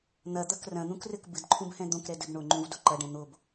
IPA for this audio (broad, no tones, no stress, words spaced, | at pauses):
n̪ɐd̪ɐk rɐ̃n̪ũkrɘk bɨdǃʰũbhɛ̃ d̪õkɾɛdɘb ɳoŋ͡ǃũvdo ǃɐɖɛ̃ n̪ob